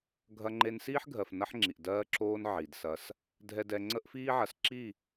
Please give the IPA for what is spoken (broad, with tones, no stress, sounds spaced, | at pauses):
ɡʱ ɐ˦ ŋ͡ǃ e˦ n s iː˦ ħ ɡʱ ɜ˨ f n ɐ˦ ħ ŋ͡ǁ i˨ ʔ d ɜː˦ ǁ oː˦ n ʕ i˨ d s ɐ˦ s | dʱ ɛ˨ d ɛ˨ ŋ͡ǀ ə˦ ʔ f iː˦ ʕ ɐ˨ s ǁ i˦˨